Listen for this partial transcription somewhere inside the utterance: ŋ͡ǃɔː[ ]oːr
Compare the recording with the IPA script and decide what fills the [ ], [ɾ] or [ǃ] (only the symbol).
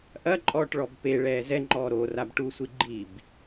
ɾ